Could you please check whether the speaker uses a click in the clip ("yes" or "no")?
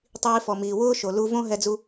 no